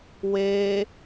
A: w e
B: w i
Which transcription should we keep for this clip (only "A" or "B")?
A